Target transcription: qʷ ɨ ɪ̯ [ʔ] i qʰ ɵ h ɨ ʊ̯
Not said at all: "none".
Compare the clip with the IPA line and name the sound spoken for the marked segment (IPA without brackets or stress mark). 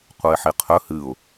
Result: ħ